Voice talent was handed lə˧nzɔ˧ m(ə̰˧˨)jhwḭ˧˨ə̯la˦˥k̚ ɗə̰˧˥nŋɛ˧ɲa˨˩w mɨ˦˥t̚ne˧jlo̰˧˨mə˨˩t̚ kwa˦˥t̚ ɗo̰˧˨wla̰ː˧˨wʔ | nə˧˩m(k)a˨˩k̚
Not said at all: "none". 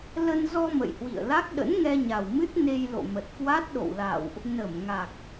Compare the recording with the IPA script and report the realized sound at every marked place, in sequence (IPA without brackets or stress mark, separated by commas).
ə̰˧˨, ŋ